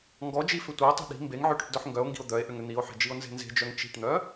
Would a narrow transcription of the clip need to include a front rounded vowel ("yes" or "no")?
yes